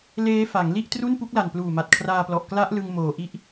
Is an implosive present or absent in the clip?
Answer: absent